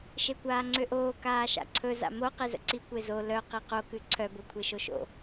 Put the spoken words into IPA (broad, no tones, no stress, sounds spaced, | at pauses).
ʃ e kʷ aː ŋ͡ǀ ø ʔ oː k aː ʃ a̰ ǀʰ ɵ z a̰ m o q e z ə̰ ǀ i kʷ e z o l œ q i q o k ʉ ǀʰ œ b o kʷʰ e ʃ o ʃ o̰